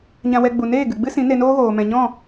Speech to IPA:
ɲ ã˧ w ɛ˧ ɡ͡b u˨ n eː˦˨ ɡ ɨ˨ ɡ͡b ɨ˦ s ĩ˨˦ n e˧ n oː˦ ɣ oː˨ m ɛ̃˨ ɲ ɔ̃˦˨

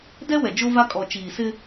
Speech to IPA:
d ɛ˦ w ɛ˨ d͡ʒ o˦ v a˦ kʼ ɔ˨ t͡ʃ iː˨ s ɪ˦

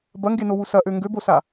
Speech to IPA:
b ɐ ŋ ɡ e n o w u s ɐ ʔ ø ŋ ɡ ø b o s a

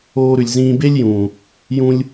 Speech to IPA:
oː˧ ɾ ʉ˨ lʲ z ĩː˧ b e˦ lʲ j ũː˨ | j ũ˧ lʲ

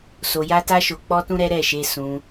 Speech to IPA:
s o˧ j a˦ t a˦ ʃ o˧ k͡p ɔ˦ t ũ˦ ɾ ɛ˦ ɾ ɛ˦˨ ʃ e˧ s ũ˧

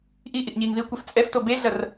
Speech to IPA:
ʔ i ʔ i ʔ ɲ iː ŋ ð i kʷ ɛ f t͡sʼ ɛ f t o b e ɮ ɐ r

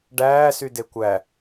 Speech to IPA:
ɖ æː s y d e kʷ æ

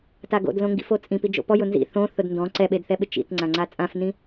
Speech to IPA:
t a ɡ o̰ d l õ ŋ ɡ ḭ f o t͡sʼ ĩ p i d͡ʒ o̰ p ɔ j ʊ n z ḭ θ õ θ ʊ d n d ɔ̃ ǀ ɛ ɓ e d θ ɛ ɓ ɪ t͡ʃ ḭ t ŋ͡ǀ ã ŋ͡ǀ a t͡sʼ ã f n ĩ

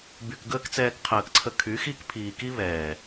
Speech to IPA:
b y˨ k ɡ əː˦ k t͡s ɛː˧ k qʰ əː˨ k ǀʰ ə˧ kʰ y˨˦ x i˦ k pʰ iː˨ k i˦ β ɛː˨

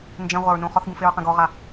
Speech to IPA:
n d͡ʒ ẽ ʁʷ a ɹ n ũ χ ɔ θ ɡ ũ f e ɹ q ẽ ɡ ɔ ʁ a

